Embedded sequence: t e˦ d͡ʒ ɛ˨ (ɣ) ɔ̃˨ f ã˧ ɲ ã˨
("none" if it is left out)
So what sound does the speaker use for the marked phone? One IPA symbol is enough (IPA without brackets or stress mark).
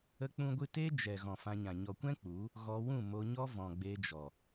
ɣ